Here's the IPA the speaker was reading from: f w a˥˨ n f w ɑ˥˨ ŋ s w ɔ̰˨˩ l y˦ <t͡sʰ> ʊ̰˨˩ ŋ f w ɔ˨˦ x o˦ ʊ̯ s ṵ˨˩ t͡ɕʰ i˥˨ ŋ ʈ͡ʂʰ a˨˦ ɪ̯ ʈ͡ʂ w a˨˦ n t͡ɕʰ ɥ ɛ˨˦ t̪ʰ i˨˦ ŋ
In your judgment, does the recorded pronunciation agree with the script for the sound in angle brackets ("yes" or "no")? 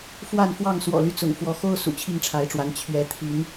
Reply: no